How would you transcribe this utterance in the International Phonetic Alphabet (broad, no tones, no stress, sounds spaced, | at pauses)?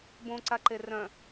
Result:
b õ ǀ a ǃ e r œ̃